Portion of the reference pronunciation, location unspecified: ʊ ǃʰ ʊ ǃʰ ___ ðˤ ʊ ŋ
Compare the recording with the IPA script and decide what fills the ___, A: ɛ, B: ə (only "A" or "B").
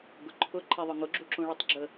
A